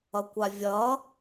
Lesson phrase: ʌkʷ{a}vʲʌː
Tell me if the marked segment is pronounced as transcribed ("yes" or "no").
yes